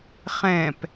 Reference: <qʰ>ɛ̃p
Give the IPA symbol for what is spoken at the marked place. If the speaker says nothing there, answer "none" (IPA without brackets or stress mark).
χ